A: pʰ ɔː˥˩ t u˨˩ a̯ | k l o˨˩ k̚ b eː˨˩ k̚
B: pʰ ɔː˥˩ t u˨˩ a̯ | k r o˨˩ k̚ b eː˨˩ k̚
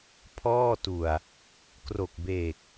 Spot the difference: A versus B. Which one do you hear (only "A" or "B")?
B